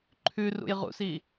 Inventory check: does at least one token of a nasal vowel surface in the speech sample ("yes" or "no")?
no